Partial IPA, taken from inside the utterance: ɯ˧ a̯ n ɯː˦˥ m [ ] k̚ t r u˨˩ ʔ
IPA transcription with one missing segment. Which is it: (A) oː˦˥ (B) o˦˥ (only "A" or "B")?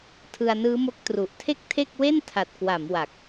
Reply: B